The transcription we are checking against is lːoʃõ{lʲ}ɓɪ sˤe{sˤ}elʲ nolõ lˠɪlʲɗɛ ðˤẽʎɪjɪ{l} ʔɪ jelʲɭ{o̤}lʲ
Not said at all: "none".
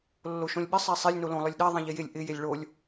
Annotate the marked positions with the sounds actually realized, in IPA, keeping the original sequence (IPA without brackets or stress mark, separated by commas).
lʲ, sˤ, lʲ, o